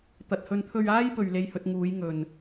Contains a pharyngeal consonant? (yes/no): no